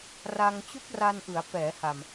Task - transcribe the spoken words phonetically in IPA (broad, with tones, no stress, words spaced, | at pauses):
ra˧ŋ t͡ɕu˦˥k̚ra˧nʔɯ˩˦a̯ pɛː˩˦ha˨˩m